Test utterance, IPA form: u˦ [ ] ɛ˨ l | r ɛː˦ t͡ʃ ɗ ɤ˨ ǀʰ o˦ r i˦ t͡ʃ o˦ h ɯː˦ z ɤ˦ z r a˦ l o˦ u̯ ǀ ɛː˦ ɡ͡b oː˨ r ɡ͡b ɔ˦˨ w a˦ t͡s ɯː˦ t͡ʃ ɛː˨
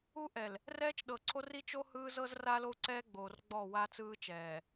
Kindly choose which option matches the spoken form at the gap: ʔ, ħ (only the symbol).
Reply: ʔ